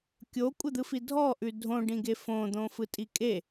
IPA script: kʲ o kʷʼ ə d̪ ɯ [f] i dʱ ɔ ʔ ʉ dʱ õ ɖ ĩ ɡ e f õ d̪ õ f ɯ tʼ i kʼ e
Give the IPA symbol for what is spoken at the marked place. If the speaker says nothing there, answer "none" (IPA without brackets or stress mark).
f